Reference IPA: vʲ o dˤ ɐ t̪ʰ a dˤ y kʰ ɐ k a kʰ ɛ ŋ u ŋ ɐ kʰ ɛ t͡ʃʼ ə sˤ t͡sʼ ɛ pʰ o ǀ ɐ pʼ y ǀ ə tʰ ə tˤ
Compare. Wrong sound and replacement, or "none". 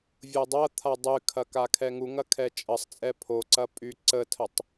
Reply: none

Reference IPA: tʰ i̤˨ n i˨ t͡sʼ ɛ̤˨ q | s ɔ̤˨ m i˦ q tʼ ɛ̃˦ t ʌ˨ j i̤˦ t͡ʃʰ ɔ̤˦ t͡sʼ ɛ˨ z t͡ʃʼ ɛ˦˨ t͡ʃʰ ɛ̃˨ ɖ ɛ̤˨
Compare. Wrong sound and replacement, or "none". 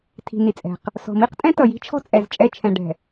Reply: none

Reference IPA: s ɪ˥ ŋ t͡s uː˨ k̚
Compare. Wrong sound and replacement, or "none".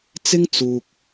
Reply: s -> t͡s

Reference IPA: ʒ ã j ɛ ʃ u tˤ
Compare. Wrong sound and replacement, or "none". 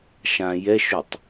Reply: ʒ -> ʃ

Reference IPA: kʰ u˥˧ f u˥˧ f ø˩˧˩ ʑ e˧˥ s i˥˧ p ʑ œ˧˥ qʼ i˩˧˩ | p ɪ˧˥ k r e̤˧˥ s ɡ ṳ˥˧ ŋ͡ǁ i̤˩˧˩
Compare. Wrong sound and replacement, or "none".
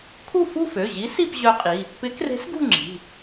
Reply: e˧˥ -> i˧˥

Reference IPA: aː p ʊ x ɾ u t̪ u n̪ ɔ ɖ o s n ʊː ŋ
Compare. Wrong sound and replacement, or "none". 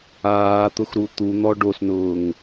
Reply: p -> t̪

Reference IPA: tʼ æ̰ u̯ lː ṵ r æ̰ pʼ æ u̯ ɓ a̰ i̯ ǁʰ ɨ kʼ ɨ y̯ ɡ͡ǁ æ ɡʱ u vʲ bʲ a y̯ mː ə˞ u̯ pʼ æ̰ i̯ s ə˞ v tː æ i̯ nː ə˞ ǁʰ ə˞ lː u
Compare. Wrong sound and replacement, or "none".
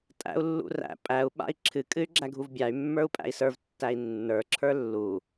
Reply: vʲ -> v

